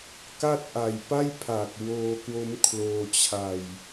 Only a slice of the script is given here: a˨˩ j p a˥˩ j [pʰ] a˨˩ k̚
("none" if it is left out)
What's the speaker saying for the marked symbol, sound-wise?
pʰ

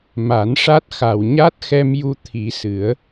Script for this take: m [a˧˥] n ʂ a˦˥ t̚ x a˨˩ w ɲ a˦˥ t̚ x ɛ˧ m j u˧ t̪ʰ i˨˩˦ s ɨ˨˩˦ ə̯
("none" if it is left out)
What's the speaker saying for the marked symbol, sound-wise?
a˨˩˦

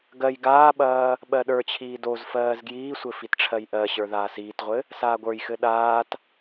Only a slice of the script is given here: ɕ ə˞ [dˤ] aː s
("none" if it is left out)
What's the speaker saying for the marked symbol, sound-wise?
ð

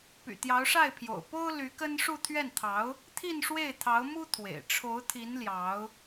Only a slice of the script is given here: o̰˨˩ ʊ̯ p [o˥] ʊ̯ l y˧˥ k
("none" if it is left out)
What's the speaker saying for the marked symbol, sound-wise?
o˥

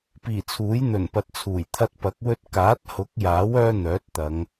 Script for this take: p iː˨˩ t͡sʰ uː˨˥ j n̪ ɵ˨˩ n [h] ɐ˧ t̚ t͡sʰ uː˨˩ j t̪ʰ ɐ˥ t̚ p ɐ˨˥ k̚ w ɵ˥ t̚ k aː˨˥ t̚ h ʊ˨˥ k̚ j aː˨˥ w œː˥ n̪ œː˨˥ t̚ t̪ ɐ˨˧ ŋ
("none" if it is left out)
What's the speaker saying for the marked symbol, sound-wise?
p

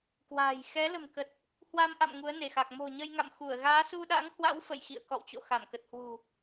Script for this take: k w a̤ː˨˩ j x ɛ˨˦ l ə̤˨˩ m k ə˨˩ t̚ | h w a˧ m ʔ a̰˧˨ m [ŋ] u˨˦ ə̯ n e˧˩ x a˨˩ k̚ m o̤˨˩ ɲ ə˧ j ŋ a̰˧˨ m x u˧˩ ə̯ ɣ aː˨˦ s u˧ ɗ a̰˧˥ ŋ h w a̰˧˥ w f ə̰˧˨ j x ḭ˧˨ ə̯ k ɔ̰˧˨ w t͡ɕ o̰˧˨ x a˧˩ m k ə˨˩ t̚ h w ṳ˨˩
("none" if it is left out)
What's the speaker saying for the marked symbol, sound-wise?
ŋ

